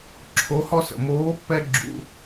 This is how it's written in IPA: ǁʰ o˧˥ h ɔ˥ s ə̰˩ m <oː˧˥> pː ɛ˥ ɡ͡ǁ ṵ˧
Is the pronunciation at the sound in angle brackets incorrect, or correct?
correct